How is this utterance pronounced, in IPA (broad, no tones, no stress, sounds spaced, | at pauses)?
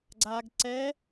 ɡ͡ǀ a ɡ ǀ ɛ